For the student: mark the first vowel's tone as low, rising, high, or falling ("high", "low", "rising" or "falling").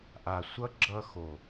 low